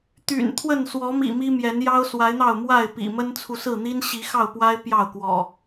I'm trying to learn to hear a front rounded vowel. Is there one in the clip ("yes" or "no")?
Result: yes